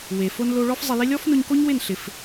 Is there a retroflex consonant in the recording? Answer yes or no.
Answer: yes